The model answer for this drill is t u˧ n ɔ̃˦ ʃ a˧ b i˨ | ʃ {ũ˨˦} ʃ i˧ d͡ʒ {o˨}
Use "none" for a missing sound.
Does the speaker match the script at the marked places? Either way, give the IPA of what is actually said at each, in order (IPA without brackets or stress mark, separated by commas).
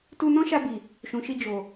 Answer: ũ˨, o˨